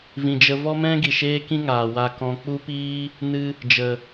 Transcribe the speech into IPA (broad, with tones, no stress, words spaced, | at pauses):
vĩ˨d͡ʒə˧ vɔ˦mɛ̃˦ɡi˨ ʃeː˦kĩ˦ŋaː˨ wa˧kɔ̃˧ k͡pu˦piː˦ | nɨ˧ | d͡ʒə˨